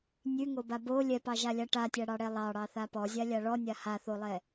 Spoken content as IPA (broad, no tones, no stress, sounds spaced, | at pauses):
nʲ ʉ ŋ o b a b o lʲ ɛ p ɑ ʒ a lʲ a ʈ a tʲ a ɽ ɑ ɽ ɛ lˠ ɑ ɽ ɑ θ a p ɔ zʲ a lʲ a ɭ ɔ nʲ a h a θ o lˠ ɛ